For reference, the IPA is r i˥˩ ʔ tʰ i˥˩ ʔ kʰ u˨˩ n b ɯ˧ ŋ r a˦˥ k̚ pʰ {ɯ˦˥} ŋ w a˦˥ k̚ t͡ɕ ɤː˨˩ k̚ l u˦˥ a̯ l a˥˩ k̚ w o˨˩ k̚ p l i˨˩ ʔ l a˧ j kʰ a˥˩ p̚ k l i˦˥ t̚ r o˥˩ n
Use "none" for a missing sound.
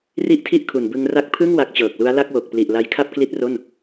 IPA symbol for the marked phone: ɯ˥˩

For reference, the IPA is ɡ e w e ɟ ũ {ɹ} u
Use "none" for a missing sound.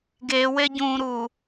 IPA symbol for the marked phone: ɾ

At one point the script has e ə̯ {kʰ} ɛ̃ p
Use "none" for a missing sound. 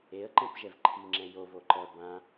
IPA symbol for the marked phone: ǃ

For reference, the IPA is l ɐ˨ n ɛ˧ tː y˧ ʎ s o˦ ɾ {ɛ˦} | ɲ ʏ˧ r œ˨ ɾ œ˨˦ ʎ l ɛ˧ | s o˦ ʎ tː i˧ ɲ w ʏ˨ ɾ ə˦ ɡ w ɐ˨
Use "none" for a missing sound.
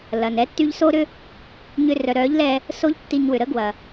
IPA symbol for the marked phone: ʏ˦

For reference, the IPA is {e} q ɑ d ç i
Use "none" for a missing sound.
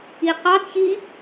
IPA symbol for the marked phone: i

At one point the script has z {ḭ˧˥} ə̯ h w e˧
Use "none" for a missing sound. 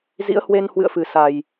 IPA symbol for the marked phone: ḭ˧˥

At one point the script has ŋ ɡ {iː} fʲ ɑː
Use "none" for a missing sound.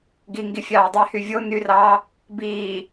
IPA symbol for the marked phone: i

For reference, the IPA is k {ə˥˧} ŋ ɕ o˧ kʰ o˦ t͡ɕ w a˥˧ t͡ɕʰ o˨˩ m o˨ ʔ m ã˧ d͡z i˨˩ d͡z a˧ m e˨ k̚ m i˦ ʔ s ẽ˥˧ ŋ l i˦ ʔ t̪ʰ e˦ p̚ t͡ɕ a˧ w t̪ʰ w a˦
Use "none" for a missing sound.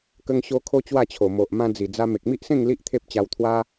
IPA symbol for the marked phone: ə˧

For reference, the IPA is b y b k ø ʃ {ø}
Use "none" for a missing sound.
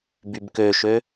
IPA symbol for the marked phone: ø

